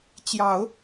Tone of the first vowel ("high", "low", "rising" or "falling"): low